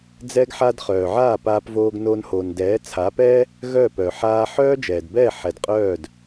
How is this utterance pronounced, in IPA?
d͡z ɛ˧ ɡ ħ a˧ d χ œː˨ ʕ aː˦˨ p aː˧ p v oː˧ ɡ n o˧ n h o˨ n d ɛː˨˦ t͡sʰ aː˨˦ p ɛː˦ | ɣ œ˦˨ p œ˨ ħ aː˧ ħ œː˦ d͡ʒ ɛː˨ d b ɛː˦˨ ħ ɛ˨ d qʼ œː˦˨ d

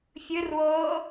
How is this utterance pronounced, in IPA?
fʲ ɯ r w oː

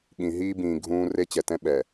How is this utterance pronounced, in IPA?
ɠ ĩ˨ ɦ iː˦ b ĩː˨ ɡʱ ũː˦ r e˦ t͡ɕ ɛ˨ t ɛ̃˦ ɓ ɛ˨

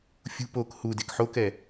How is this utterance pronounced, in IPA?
fʲ ṳ p o k h u d e k ħ o k ɛ

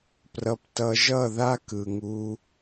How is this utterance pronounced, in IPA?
p r ʌ˧ p t ʌ˧ ʒ ʌ˦˨ ð a˦ k ɯ˨ ŋ u˧

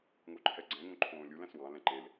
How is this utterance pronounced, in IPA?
ŋ o ǃʰ ɛ ɡ͡ǀ ɛ̃ ŋ õ ǃʰ õː lʲ u l æ̃ s w ɑ̃ l ɛ̃ ǃ e l

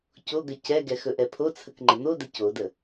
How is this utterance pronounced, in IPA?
c o ɡ ə c ɛ ɡ ɛ x ɵ ʔ ɛ pʰ o t͡sʰ ə k ŋ͡ǃ ə n̪ o d ə c o d ə

